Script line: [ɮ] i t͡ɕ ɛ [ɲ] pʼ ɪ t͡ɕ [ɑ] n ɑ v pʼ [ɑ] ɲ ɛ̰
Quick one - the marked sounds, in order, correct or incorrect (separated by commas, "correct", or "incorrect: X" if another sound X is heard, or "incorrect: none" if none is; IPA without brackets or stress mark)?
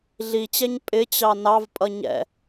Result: correct, correct, correct, incorrect: ʌ